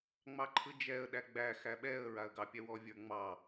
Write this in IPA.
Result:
ŋ͡m ɑ ǃʰ ɯ d͡ʒ ɛ ə̯ ɗ æ ɡ͡b æ x æ ɓ ɛ ə̯ ɹ a ə̯ ɡ ɑ pʲ ɛ w ɔ vʲ ə˞ ŋ͡m ɑ

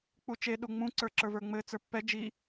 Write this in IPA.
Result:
k͡p u t͡ʃ e ɗ u ŋ͡m ũ ǀ ə˞ ǁ ə˞ v ə˞ ŋ͡m ɘ t͡s ə˞ pː ɛ d͡ʒ i

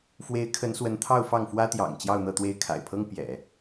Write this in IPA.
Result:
f w e˧˥ ɪ̯ kʰ ə˧˥ n s w ə˧˥ n t̪ʰ ɑ˥˧ ʊ̯ f ɑ˥˩ ŋ f w ä˥ t̪ j ɑ̰˨˩ ŋ t͡ɕ j ɑ˥˧ ʊ̯ n̪ ɤ˥˧ t̪ w e˥˩ ɪ̯ kʰ a̰˨˩ ɪ̯ pʰ ɤ˥ ŋ p j ɛ̰˨˩˦

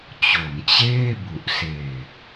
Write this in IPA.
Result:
t͡ɕ o˩˦ m t͡ɕ eː˥˩ b u˨˩ ʔ s eː˨˩ k̚

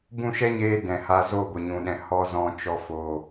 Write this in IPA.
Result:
b ũ˦˨ ʃ ɛ˦ ɲ eː˧ d ɛ̃˨ h a˧ z o˦˨ ɡʷ ə˨ ɲ ũ˨ ɗ ɛ̃˨ h ɔ˦ z ɔ̃˧ t͡ʃ ɔ˧ f o˨

